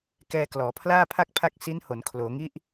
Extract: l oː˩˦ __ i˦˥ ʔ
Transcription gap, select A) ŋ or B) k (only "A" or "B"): A